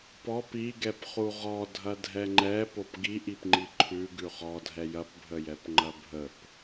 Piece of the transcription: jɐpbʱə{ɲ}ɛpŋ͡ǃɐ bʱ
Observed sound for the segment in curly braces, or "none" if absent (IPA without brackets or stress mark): j